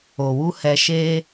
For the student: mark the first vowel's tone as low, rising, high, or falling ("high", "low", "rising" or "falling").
low